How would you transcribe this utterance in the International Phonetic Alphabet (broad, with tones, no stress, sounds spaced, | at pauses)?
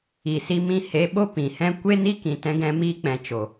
i˨ s i˧ m ĩ˧ h e˨˦ ɓ o˦ p ĩ˨ h ɛ̃˦ kʷ e˦ n i˦ k ĩ˨ t ɛ̃˧ ɡ ɛ̃˧ m iː˧ k͡p ɛ̃˨ t͡ʃ o˨